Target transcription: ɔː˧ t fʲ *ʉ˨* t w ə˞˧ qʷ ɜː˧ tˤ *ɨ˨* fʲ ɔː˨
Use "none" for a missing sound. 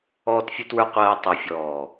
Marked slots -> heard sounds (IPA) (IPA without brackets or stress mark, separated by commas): ʉ˧, ʉ˨